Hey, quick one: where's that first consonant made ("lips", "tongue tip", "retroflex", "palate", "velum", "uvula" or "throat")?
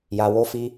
palate